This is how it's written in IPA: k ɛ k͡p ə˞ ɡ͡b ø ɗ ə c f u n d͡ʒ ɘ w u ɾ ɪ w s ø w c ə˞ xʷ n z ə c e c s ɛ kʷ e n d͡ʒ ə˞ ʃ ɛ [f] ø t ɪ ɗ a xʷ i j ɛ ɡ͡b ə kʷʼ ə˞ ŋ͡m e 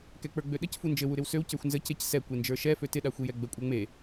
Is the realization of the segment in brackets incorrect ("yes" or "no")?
no